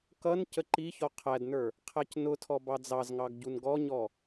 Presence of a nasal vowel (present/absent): absent